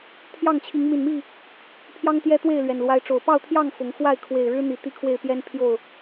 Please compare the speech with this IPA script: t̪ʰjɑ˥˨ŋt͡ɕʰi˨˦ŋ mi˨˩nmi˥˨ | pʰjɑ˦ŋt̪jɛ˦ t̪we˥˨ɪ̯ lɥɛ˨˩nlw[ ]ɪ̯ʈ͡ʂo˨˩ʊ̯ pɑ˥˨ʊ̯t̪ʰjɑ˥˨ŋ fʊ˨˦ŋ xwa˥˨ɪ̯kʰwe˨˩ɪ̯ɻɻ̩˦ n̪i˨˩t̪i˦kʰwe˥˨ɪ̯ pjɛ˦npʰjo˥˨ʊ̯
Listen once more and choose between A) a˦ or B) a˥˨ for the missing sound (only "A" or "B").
A